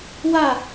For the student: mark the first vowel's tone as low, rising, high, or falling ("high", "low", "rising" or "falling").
falling